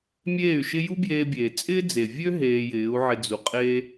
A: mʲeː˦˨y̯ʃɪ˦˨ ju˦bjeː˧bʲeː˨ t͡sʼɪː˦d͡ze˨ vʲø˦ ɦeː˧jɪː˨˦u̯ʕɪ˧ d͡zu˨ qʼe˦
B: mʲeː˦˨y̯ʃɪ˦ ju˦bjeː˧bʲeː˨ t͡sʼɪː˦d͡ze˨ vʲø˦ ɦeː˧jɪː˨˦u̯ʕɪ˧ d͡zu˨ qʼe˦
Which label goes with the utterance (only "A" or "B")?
B